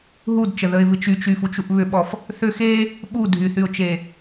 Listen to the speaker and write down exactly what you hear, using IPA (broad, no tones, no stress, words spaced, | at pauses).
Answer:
ɦudt͡ʃəðəɪ̯vɨ t͡ʃyt͡ʃyfut͡ʃuʔ βʏɓɔf | θʏ xe | ɓu dʱyθyʊ̯t͡ʃe